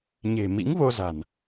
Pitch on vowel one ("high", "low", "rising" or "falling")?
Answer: low